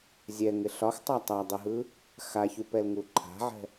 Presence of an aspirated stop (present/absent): present